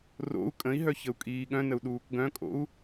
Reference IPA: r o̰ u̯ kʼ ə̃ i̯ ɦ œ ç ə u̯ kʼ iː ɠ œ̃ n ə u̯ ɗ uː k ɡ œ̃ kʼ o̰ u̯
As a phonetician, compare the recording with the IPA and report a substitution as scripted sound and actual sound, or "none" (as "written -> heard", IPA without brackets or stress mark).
none